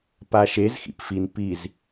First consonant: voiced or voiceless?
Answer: voiceless